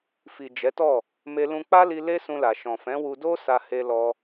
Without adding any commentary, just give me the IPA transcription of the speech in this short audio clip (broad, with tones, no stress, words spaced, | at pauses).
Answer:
fi˨ d͡ʒɛ˨˦tɔ˦˨ | me˧lũ˧k͡pa˦li˧ le˦sũ˧la˨ʃɔ̃˨ fɛ̃˨˦wu˧do˦ sa˧he˧lɔ˧